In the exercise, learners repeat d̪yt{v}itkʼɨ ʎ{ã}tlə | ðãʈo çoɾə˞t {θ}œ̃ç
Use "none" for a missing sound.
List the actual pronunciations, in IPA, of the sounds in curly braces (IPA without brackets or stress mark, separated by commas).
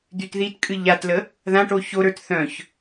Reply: ð, a, θ